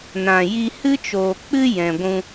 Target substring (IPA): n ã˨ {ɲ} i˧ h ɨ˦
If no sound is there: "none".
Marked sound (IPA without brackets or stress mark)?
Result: j